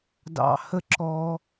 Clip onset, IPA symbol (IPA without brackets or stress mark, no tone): d